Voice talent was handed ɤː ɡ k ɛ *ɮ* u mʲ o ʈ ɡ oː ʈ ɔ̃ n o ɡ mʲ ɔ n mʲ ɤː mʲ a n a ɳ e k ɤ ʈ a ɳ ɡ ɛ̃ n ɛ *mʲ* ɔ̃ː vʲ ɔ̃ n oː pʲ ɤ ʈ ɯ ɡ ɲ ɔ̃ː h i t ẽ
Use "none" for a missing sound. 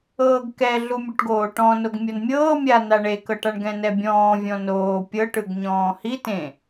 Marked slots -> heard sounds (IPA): ɮ, bʲ

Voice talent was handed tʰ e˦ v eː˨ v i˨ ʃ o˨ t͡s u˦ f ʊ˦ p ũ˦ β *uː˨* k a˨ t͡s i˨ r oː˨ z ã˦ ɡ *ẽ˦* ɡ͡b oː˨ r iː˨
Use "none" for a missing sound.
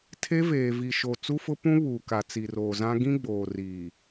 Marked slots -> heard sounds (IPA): uː˨, ĩ˦

